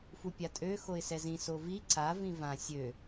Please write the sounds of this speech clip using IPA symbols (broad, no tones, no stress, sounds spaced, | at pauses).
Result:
f u pʲ a tʼ ø x o ɪ̯ s ɛ z ĩ s o v i ǀ a v ĩ v ã sʲ ø